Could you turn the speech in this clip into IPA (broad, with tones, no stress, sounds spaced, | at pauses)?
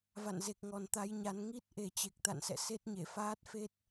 v a̰˧˨ n z e˨˩ k̚ ŋ ɔ˨˩ n t̪ a˧ j ɲ a˨˦ n ŋ i˦˥ t̚ ʔ e˨˩ t͡ɕ e˨˩ k̚ t̪ a̰˧˨ n s ɛ̰˧˨ s e˦˥ t̚ ɲ e˧˩ f aː˦˥ t̚ f e˦˥ t̚